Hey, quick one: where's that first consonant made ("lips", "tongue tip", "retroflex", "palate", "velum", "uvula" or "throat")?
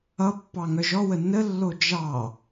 lips